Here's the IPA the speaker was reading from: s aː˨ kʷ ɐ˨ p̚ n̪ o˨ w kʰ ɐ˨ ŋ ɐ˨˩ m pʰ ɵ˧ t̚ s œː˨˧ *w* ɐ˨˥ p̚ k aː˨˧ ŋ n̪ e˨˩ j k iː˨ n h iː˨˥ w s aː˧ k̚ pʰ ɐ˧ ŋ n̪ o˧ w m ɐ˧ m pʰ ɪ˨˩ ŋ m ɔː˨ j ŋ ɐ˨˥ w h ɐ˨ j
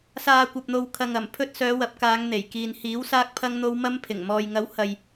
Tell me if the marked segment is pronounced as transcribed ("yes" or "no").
yes